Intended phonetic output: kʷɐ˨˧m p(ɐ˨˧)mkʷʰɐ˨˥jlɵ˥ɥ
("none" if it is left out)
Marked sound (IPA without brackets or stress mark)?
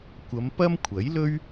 ɐ˥